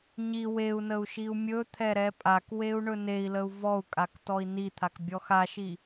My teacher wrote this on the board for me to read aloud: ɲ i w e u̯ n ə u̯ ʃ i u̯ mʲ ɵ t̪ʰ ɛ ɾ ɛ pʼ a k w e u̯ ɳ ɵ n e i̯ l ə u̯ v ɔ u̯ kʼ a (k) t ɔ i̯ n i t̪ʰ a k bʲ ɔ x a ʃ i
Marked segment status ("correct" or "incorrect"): correct